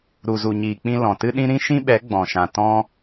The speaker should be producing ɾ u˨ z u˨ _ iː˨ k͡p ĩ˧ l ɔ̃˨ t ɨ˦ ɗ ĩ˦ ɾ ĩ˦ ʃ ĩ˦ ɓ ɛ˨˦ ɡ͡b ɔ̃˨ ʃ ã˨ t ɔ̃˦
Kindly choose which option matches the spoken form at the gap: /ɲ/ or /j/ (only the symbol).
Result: ɲ